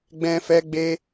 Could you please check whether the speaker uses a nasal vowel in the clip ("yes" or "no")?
yes